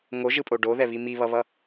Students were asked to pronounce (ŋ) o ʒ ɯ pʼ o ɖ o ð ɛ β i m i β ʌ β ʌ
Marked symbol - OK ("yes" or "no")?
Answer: yes